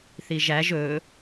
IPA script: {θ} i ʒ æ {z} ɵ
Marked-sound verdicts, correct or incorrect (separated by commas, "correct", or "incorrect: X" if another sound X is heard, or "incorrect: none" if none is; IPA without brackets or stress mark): correct, incorrect: ʒ